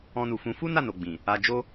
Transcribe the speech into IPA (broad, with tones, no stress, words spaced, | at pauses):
ɔ̃˧nu˨fũ˨˦ fu˦ na˦˨no˨ɡ͡bĩ˨ | a˧d͡ʒo˦